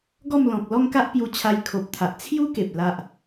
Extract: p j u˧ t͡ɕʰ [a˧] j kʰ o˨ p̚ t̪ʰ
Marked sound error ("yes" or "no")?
no